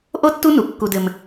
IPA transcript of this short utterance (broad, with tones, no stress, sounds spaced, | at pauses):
ʔ o˥ tː u˥ n u˧˩ kː u˧ d ɘ˧ m